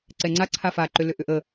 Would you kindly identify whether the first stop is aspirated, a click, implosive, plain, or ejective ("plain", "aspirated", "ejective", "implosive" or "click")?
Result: click